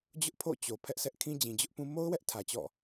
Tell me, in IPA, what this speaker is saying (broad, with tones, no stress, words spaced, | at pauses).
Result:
d͡ʑʊ˦ʔpʰo̰˦˨ t͡ɕo˨ pʰɛ˦ʔsʰɛ˦ʔ kʰĩ˦d͡ʑĩ˨d͡ʑʊ˦ʔpũ˦ mo˦ʊ̯wɛ˦ʔ tʰä˨t͡ɕɔ̰˦˨